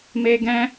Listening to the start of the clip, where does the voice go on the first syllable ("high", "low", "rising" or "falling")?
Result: high